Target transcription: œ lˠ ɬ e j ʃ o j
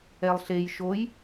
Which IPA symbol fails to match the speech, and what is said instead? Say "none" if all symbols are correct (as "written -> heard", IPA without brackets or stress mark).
œ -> ɛ